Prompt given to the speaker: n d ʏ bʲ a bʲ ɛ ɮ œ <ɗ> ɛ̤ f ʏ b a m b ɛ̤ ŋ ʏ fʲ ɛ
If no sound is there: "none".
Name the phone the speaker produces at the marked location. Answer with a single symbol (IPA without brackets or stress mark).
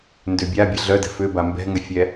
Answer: d